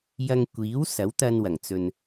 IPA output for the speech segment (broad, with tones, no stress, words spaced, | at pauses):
jɐ˧ŋkʷiː˨˥w sɐ˨˥wt̪ɐ˧nwɐ˨˩ŋt͡sɵ˨n